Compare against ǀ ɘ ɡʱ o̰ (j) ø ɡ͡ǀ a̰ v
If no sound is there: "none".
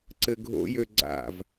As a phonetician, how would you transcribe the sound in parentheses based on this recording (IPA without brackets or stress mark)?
j